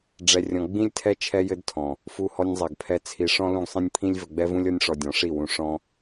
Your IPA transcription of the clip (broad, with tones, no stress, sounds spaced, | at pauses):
ɖ͡ʐ ɛ˧ rʲ ɔ̃˧ ɡ͡b ĩ˦ lʲ tʰ ɛ˦ t͡ʃʰ ɛ˦ j ɘ˦ d tʰ ɔ̃˨ | f u˧ h ɔ˧ nʲ zˤ ɛ˨ ɡ pʰ ɛ˧ t͡sʰ i˧ ʂ ɔ̃˦ l ũ˦ ɡ sˤ ĩ˦ nʲ pʰ ĩ˦ lʲ v ɘ˧ ɡ͡b ɛ˦ v ũ˦ lʲ ɔ˦ nʲ ʂ ɔ˧ dʲ ɔ̃˨˦ ʂ i˦˨ w ũ˧ ʂ ɔ̃˦